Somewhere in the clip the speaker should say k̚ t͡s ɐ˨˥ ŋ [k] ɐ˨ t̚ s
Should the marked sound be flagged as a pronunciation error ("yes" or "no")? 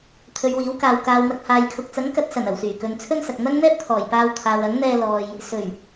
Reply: no